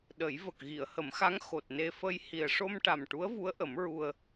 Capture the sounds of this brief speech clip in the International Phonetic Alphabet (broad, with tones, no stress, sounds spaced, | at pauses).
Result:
ɗ ə˨˩˦ j v ə˨˩ k̚ ɣ i˨˩˨ ə̯ h ə˨˩˦ m x a˧˥ ŋ x o˨˩ t̚ n e˧ f ə˧ j h i˨˩ ə̯ ʂ o˧ m ʈ a˨˩ m ʈ u˧˥ ə̯ v u˧˥ ə̯ ʔ ə˨˩˦ m ɹ u˧ ə̯